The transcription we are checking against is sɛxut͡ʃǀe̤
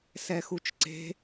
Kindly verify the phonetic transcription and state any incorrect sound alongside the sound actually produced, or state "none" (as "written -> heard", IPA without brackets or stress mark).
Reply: none